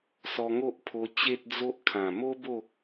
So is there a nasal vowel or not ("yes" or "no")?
yes